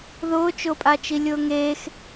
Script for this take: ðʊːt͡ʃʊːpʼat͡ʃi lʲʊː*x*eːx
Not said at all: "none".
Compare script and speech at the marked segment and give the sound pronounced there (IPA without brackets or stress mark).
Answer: ŋ